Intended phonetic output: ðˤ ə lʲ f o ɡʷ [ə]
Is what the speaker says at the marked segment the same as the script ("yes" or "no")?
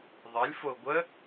yes